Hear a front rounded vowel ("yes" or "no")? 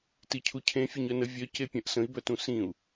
yes